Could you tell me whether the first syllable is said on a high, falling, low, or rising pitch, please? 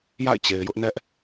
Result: falling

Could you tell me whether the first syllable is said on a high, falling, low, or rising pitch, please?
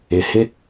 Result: low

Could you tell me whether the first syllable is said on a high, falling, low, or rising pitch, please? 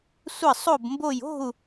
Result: falling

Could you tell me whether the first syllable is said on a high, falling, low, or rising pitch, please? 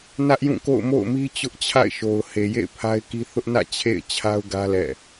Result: high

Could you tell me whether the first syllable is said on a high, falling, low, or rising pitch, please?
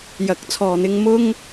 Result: rising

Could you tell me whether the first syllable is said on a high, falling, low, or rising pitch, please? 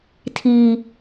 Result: high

